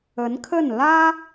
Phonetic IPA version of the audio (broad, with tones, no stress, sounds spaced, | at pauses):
ə˧˥ n kʰ ə˥˩ n l ä˥